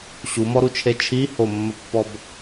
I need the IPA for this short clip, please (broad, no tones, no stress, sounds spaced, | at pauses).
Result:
ɕ u m ɔ ɾ u t͡ʃʰ e t͡ʃʰ i h o mː ə pː ɔ b